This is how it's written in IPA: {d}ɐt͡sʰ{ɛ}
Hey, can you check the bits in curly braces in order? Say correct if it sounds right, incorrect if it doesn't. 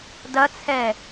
correct, correct

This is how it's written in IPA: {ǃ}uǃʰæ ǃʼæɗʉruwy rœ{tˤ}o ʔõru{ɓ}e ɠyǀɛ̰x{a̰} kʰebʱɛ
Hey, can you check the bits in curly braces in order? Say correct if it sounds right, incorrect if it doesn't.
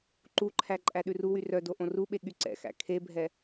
correct, incorrect: d, correct, incorrect: æ̰

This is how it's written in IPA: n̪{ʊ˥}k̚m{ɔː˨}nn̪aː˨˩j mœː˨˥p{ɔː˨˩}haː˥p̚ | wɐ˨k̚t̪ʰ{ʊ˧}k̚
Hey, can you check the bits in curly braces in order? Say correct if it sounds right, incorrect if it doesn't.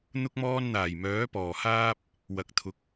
correct, incorrect: ɔː˥, correct, incorrect: ʊ˨

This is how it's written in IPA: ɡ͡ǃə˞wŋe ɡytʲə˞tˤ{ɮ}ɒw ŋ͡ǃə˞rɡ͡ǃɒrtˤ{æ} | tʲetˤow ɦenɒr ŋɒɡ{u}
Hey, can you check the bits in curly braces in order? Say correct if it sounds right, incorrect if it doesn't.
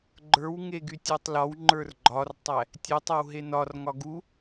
incorrect: l, correct, correct

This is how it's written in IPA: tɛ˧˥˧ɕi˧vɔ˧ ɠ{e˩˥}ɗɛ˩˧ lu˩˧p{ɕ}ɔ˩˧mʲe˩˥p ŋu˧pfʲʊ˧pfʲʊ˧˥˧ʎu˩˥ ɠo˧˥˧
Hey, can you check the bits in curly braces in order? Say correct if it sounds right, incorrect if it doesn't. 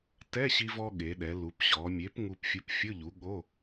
incorrect: e˩˧, correct

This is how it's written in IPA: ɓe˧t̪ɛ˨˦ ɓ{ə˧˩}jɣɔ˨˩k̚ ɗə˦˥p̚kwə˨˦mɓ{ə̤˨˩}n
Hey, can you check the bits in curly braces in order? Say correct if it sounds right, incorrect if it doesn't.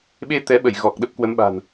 correct, incorrect: a̤˨˩

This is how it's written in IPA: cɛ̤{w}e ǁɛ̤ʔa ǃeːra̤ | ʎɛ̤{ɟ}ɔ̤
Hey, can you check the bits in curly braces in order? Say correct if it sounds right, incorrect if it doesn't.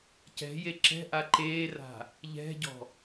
incorrect: j, correct

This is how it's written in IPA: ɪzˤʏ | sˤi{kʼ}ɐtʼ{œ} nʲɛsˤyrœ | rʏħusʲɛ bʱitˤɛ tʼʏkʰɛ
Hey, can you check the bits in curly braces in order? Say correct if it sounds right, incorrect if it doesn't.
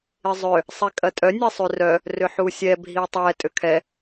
correct, correct

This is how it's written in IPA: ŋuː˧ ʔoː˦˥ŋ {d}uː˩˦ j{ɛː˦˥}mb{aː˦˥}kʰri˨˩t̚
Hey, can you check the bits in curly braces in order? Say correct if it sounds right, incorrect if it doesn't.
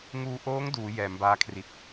correct, incorrect: ɛː˩˦, correct

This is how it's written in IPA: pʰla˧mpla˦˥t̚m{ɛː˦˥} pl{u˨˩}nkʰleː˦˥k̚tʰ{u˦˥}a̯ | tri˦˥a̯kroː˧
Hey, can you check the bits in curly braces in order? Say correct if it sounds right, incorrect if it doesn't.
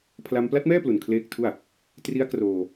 incorrect: ɛː˥˩, correct, incorrect: u˥˩

